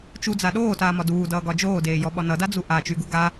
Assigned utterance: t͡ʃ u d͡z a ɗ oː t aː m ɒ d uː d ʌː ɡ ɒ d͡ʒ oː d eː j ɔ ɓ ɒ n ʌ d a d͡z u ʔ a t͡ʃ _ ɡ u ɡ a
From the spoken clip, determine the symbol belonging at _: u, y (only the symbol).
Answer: y